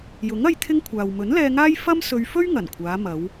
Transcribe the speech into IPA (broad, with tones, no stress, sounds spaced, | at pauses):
j ʊ˨˥ ŋ ɐ˧ j t̪ʰ ɪ˥ ŋ kʷʰ aː˨ w m ɵ˨˥ n l ɛː˧ ŋ aː˥ j f ɐ˥ m s ɵ˧ ɥ f ɵ˥ ɥ ŋ ɐ˨˩ n kʷʰ aː˨˧ m ɐ˨˧ w